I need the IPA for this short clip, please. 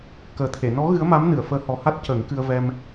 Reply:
k əː˨˩ t̪ʰ e˨˩˨ n ɔ˧˥ ɣ ɨ˧˥ ə̯ m a˧˥ m n ɨ˨˩˨ ə̯ f əː˧˥ h ɔ˨˩ h a˦˥ t̚ c əː˨˩˦ ŋ k ɨ˧ ə̯ v ɛ˧ m

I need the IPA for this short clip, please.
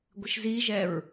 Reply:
ɡʷ ɪ ʃ z i ʒ ɛ ɹ

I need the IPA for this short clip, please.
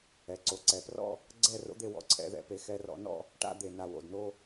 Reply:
ɛ˩˧ ǀ o˩˧ ǀ ɛ˩˧ p r ɔ̰˥˧ | ɡ͡ǀ ɛ˥˧ r o̰˥ d̪ e˧ w ɔ̰˧˩ ǀʰ ɛ̰˧ ð ɛ̰˧ p e˧ x ɛ˧ r ɔ̰˧ n ɔ̰˥˧ | ʈ a̰˥˧ d̪ e˧˩ n a˧˩ w o̰˧˩ d n o˥˧

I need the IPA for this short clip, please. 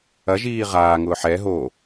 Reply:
ɐ ʒ iː ʁ aː ŋ ʊː ħ ɛ ɦ o

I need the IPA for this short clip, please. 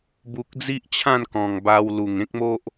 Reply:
b u˨ k̚ d͡z i˦ ʔ t͡ɕʰ ã˥˧ n k ɔ̃˨˩ ŋ b a˧ w l u˨˩ ŋ ẽ˦ k̚ m o˦ ʔ

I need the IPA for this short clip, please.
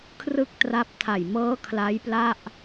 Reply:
kʰ r ɯ˥˩ k̚ t r a˦˥ p̚ tʰ a˨˩ j m ɤː˦˥ kʰ l a˦˥ j p l a˥˩ ʔ

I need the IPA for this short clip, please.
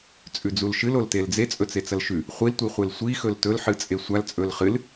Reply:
t͡sʼ ʉ d͡z u l ʃ ɨ l o l t e l d͡z e t͡sʼ ɵ t͡s e t͡s ɐ l ʃ ʉ | χʷ i l tʷ i χʷ e l sʷ i x ɵ l t ɵ l ħ ɨ t͡sʼ e sʷ a l t͡sʼ ɵ l χ ɨ l

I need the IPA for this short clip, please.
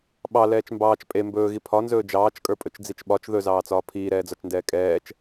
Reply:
ɓ ɑ l ɛː t͡ʃ m b ɑː t͡ʃ pʼ e m b ɵː ɣ i pʰ ɒ n z ɵː d͡ʒ ɑː t͡ʃ kʼ ə˞ pʼ ɵ t͡ʃ d͡z i t͡ʃ ɓ ɒ t͡ʃ ð ɵ z ɑː t͡s ɒː pʰ iː ɾ ɛː d͡z ɒ t͡ʃ n d ɛː kʼ ɛː t͡ʃ

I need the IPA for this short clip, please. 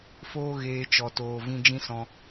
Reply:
f oː˦ ɣ eː˧ t͡ʃ ɔ˨ t oː˨ v ĩ˧ d͡ʒ ĩ˦ s ɔ̃˧

